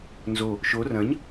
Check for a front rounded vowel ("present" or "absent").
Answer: absent